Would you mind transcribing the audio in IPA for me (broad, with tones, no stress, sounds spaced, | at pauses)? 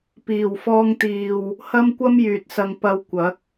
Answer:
p iː˨˩ w f ɔː˧ ŋ t̪ iː˨ w | h ɐ˥ m kʷ ɐ˥ m j yː˨ t̚ s ɐ˧ ŋ p ɐ˧ w kʷ ɐ˨˥ k̚